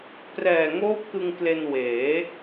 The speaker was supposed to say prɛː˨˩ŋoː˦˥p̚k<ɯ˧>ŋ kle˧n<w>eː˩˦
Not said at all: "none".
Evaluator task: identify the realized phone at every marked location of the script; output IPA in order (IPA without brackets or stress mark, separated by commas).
ɯ˧, w